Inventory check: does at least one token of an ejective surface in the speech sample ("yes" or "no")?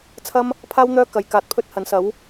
no